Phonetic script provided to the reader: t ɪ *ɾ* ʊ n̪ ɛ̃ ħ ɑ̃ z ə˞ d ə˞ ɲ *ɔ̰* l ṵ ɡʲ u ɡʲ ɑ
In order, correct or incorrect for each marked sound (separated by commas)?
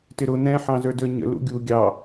correct, incorrect